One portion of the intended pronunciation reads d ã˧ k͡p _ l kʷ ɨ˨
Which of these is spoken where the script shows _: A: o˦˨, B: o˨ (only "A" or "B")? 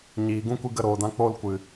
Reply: A